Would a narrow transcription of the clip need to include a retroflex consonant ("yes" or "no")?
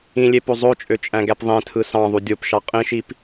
no